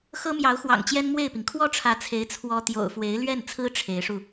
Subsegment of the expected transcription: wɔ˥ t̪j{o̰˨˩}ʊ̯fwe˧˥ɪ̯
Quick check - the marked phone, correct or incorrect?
correct